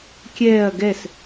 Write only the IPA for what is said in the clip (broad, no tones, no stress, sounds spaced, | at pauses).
kʲ ɛː ɐ̯ ɡ ɛ s